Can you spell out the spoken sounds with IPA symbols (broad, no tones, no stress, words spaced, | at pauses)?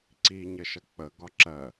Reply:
ǀi ɲəʃʌk͡pə ɡɒǁɜ